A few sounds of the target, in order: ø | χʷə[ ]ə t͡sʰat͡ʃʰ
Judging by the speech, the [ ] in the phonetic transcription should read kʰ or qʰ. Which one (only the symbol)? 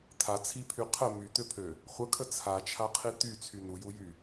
kʰ